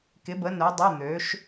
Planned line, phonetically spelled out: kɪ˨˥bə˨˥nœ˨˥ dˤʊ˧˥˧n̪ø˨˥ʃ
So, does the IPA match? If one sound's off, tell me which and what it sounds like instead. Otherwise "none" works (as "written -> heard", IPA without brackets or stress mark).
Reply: none